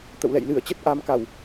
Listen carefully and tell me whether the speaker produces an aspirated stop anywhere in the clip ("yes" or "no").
no